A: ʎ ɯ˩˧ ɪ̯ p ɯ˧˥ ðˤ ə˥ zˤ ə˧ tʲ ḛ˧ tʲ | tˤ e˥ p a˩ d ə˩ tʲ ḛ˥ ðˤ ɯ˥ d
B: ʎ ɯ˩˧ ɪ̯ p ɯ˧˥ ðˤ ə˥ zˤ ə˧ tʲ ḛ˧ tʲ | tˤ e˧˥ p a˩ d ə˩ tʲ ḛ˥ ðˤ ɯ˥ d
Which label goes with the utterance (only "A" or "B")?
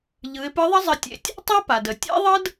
A